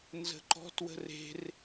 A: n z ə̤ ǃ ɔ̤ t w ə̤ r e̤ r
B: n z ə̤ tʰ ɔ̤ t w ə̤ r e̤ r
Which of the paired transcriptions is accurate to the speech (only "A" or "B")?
A